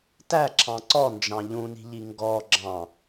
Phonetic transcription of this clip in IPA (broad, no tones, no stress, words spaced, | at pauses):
tæ ǁʰɑ̃ǀɔnd͡ʒɑ̃ ʎũni̤ʎi ŋɡɔ ɡ͡ǁɑ̃